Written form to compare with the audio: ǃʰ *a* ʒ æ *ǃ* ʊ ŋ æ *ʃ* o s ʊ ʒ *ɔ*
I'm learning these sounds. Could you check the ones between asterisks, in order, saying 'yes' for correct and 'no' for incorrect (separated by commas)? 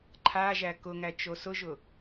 yes, no, no, no